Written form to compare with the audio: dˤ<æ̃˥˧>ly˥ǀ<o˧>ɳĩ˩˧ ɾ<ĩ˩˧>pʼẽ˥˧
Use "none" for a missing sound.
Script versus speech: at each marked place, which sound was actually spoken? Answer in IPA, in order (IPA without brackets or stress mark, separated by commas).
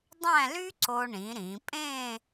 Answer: æ̃˥˧, o˧, ĩ˩˧